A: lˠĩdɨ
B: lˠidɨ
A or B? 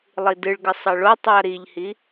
B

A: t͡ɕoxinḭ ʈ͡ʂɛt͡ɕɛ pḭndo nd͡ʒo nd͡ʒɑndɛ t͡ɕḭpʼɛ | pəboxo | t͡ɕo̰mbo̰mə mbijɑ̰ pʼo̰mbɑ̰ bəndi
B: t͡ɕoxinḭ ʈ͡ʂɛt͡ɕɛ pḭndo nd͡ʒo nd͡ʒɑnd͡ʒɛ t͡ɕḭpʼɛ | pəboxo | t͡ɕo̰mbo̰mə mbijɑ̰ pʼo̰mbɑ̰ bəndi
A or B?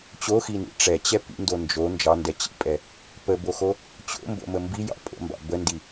A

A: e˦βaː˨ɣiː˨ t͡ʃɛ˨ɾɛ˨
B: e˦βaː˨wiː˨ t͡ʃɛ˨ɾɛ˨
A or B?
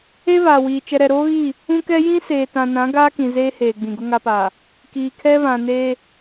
B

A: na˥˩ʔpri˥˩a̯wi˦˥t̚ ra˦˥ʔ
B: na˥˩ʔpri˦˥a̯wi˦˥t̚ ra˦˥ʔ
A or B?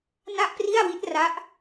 A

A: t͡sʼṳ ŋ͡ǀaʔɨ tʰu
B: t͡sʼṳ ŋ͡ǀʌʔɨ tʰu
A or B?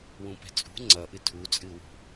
B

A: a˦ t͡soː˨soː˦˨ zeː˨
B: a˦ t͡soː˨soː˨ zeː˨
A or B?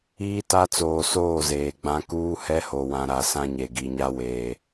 A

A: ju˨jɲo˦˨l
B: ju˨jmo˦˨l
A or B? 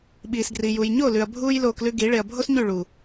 A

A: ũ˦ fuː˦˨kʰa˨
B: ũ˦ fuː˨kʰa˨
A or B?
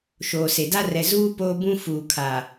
B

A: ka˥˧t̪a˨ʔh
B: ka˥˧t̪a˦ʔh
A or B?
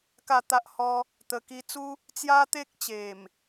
B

